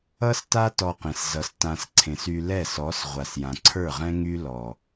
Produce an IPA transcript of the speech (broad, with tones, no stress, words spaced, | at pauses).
ʌ˦sta˦ tɔ˧qẽ˨s zʌ˨s tã˨s ǀʰẽ˨sy˧lɛ˦˨sɔ˨˦s ʁʷa˨sjã˨ǀʰə˞˦˨ʁɛ̃˦ ŋy˦lɔ˨